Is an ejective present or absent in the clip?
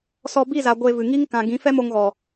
absent